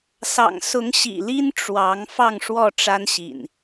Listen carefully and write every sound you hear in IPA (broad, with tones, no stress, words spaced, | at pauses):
sɑ̰˨˩ŋ sʊ˨˦ŋ ɕḭ˨˩li˦n ʈ͡ʂwɑ˨˦ŋ fɑ˥˨ŋʂwɔ˥˨ʈ͡ʂa˦nɕḭ˨˩n